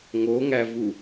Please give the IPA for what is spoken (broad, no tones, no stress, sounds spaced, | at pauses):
ŋ o ŋ æ v u